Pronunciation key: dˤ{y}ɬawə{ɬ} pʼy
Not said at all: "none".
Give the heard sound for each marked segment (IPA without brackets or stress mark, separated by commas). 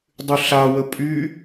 y, none